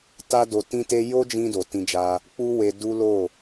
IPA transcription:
t a˦ d o˧ t ĩ˦ t e˦ j o˦ d͡ʒ ĩ˧ d o˨ t ĩ˧ d͡ʒ a˧ | k͡p u˦ w e˧ d u˦ l o˦˨

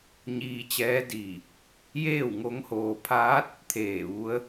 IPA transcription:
ɲ iː˧ t͡ɕ ɛː˧˥ d iː˧˩ | j eː˥˨ w ŋ o˧˥ ŋ h oː˧ pʰ aː˧˥ t̚ | t̪ʰ eː˧˩ ʋ u˧˥ ə̯

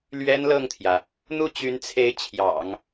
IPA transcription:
l ɥ ɛ˥ n l ɤ˥˩ ŋ t̪ʰ j ä˩ | n̪ u˥˩ t͡ɕ y˧˥ n t͡sʰ e˧˥ ɪ̯ t͡ɕʰ j ɑ̰˨˩˦ ŋ

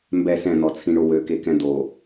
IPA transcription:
m b ɛ s ɛ̃ n̪ ɔ t͡sʰ ĩ ɳ o w ø k e k ɛ̃ d̪ o

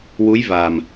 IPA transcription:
w u˧˥ j v a˨˩ m

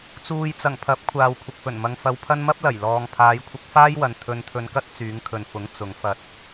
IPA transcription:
t͡s uː˨ j t͡s ɐ˨˩ ŋ pʰ ɐ˨˥ p̚ kʷʰ aː˨ w kʷʰ ɪ˨ k̚ f ɵ˨˩ n m ɐ˧ ŋ f ɐ˧ w pʰ ɐ˥ n m ɐ˥ p̚ l ɐ˨˩ j l ɔː˨ ŋ pʰ aː˨˧ j kʷʰ ɪ˧ k̚ f aː˥ j w ɐ˨ n t̪ʰ ɵ˧ n t̪ʰ ɵ˧ n k ɐ˥ t̚ t͡s yː˨˧ ŋ kʰ ɵ˨ n f ʊ˨˥ ŋ t͡s ʊ˨˧ ŋ f ɐ˧ t̚

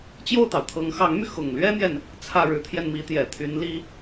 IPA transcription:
t͡ɕ j o˥˩ ʊ̯ t̪ ɑ˩ ʊ̯ t̪ʰ ɤ˧˥ ŋ x ɑ˧˥ ŋ m y˧ x ʊ˨˩ ŋ l ɥ ɛ˥ n̪ j ɛ˨ n | t͡sʰ ä˥˩ ɻ ɻ̩˧˥ t̪ʰ j ɛ˧ n m i˧˥ t̪ j ɛ˨˩ t̪ʰ y˧˥ n l i˥

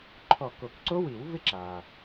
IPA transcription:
ǃʰ ɔ˧˩ k o˨˩˦ k ǀ o˦˥ w i˨˩˦ w v ɪ˦˥ ǁ a˩

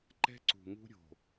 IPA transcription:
ǃ ɛ̤˦ ǀ ṳ˨ ŋ ṳ˦ ɾʲ o̤˨

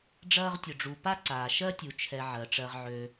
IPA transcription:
ɖ͡ʐ ɐː˦ ʁ tʲ ʊ˨ ɖ͡ʐ u˨ p a˥ ǀ aː˨ ʃ ɜ˥ tʲ u˨ t͡ʃʰ ɛ˨ ʕ ɜ˩ ʈ͡ʂ ɜ˨ ʁ ʕ ø˨

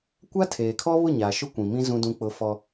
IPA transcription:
kʷ a˦ tʰ eː˨ kʰ ɔ˦ β ʊ˦˨ ɲ aː˨ ʃ ʊ˦ kʷ ĩ˨ m ĩ˦ z ũ˦ d ũ˦ k͡p ʊ˦ f ɔ˦

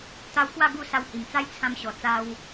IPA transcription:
t̪ a˧ w k w a˥˧ ɡ u˥˧ s a˧ w h i˨˩ m t͡s a˦ j t͡sʰ ã˧ m ɕ ɔ˨˩ t͡s a˧ w

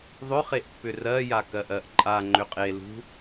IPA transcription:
ðˤ ʏ χ e ʔ pː ʏ r ɜ j a k ɜ ʔ ɜ ʔ ǃʼ a ŋ͡ǃ ʏ qʼ e l ṳ

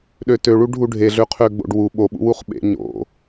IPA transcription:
ɗ ø t ø ɭ u ɖʱ u ɖʱ e ɮ ø qʰ ø ɡ͡b o̰ ɖ w u ɓ o ɓ ṵ w u χ ɓ ḛ ɲ o̰

